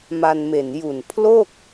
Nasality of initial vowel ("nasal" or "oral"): oral